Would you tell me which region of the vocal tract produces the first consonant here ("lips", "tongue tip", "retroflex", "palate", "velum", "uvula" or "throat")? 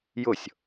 palate